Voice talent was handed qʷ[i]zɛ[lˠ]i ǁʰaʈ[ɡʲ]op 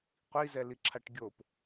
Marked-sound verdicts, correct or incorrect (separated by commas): correct, incorrect, correct